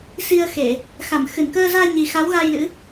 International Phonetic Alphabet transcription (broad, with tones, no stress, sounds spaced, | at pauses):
s i˧ ə̯ x e˧˩˨ | x a˧˩ m x ɨ˧˩ n k əː˧ z aː˧ ɲ i˨˩ x a˨˦ w ɣ a˧ j l ɨ̰˧˥